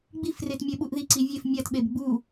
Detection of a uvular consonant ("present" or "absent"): absent